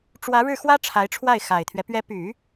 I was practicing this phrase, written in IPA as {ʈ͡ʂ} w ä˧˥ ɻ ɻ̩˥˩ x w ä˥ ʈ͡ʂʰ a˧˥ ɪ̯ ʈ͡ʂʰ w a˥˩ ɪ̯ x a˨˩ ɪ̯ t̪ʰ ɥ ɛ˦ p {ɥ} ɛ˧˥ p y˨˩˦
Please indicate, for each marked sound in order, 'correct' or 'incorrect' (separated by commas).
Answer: correct, correct